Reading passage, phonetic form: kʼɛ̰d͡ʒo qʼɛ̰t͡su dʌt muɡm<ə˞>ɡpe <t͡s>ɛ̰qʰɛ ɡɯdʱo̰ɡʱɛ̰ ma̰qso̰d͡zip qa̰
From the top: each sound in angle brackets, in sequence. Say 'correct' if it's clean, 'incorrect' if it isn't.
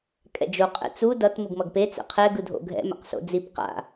incorrect: ʌ, correct

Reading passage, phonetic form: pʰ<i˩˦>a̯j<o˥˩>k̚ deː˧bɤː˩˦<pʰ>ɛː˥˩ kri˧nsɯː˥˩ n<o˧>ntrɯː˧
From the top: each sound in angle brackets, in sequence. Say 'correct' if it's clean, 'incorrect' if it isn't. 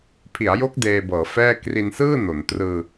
correct, incorrect: o˦˥, incorrect: f, incorrect: o˩˦

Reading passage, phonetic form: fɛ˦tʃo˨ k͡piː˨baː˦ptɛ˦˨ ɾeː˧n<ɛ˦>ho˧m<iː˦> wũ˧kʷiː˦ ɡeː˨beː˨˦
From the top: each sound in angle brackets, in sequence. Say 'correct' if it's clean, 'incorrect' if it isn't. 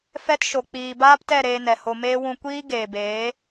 incorrect: ɛ˨, incorrect: eː˦

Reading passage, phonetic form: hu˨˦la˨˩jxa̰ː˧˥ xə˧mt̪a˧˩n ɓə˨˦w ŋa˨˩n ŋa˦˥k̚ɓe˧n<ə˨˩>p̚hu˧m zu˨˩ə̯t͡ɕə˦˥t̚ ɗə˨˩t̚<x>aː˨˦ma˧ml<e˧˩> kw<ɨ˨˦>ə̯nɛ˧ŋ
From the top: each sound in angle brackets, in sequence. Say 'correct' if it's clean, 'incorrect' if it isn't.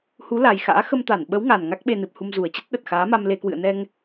incorrect: ɨ˨˩, correct, incorrect: e˧, incorrect: ɨ̰˧˨

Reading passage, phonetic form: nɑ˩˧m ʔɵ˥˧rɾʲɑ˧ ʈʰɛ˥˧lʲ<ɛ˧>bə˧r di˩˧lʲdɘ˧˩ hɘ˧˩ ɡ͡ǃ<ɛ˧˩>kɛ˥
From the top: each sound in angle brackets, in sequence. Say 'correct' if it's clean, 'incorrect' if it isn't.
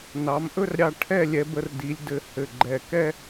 correct, correct

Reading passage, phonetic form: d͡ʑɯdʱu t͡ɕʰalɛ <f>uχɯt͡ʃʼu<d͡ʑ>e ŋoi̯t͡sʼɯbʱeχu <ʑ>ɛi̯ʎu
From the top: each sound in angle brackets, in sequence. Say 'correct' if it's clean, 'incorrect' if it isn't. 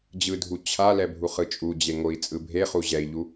incorrect: bʱ, correct, correct

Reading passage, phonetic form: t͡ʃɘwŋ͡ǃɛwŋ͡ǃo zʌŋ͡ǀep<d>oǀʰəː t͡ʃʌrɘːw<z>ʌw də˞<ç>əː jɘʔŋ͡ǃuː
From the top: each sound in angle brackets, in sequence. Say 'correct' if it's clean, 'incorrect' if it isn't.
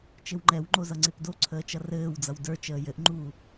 correct, incorrect: d͡z, incorrect: t͡ʃ

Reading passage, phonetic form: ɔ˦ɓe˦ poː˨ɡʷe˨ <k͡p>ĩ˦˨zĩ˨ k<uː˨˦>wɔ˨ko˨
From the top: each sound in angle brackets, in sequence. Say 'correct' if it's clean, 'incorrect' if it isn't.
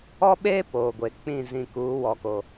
correct, correct

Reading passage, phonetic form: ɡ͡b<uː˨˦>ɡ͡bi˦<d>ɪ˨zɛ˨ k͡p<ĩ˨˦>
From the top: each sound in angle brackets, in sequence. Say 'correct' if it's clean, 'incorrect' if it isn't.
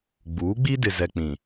correct, correct, incorrect: ĩ˨

